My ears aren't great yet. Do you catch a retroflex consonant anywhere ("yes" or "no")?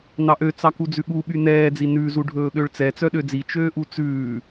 yes